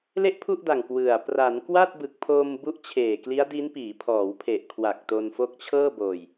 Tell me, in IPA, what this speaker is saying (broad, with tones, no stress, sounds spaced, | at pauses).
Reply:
l e˥˩ ʔ pʰ u˥˩ ʔ d a˨˩ ŋ k w ɯ˨˩ a̯ p r a˩˦ n k w a˥˩ t̚ b ɯ˨˩ k̚ pʰ oː˧ m b u˦˥ ʔ t͡ɕʰ eː˨˩ k l i˦˥ a̯ d i˦˥ n p iː˩˦ pʰ ɔː˩˦ w pʰ e˨˩ ʔ kʰ w a˨˩ k̚ t o˧ n f o˦˥ k̚ t͡ɕʰ ɤː˥˩ b oː˧ j